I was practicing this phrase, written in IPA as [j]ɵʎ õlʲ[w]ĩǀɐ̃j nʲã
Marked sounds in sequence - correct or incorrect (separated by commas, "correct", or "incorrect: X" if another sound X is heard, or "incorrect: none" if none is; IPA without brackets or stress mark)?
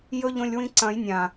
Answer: correct, correct